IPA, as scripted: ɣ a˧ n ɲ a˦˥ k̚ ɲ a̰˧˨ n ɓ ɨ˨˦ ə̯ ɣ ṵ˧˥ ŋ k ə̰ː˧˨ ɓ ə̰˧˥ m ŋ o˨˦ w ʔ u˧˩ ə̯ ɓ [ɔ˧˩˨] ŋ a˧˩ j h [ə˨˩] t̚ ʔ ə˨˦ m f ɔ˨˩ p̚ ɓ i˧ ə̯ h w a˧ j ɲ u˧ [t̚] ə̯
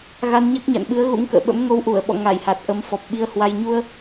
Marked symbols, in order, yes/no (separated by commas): no, no, no